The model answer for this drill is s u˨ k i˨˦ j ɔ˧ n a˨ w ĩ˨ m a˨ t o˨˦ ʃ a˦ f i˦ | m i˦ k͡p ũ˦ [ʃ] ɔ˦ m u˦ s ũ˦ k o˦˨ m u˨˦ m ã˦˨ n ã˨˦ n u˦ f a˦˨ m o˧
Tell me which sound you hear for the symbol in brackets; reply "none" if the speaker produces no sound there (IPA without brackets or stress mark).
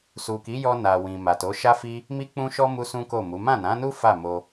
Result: ʃ